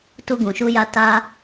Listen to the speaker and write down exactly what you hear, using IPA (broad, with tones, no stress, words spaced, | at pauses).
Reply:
tu˧ɡũ˨ʃu˧ja˧ ta˧